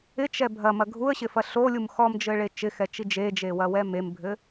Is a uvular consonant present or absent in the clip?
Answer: absent